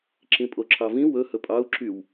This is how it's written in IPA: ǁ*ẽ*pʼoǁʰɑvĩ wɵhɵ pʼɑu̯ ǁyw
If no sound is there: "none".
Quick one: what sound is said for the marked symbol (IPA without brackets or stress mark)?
ĩ